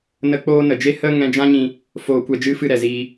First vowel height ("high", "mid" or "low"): mid